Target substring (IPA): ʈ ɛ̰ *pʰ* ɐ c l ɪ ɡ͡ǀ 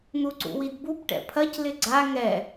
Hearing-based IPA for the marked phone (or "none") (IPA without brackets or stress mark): pʰ